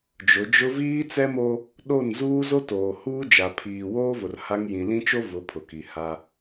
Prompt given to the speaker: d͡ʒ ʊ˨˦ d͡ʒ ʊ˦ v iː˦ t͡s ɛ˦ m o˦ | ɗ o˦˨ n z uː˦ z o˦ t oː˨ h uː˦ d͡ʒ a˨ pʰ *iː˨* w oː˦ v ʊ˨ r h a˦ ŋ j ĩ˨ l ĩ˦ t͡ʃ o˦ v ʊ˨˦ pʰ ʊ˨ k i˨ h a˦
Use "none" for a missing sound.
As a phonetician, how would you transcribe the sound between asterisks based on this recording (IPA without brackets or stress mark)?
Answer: iː˨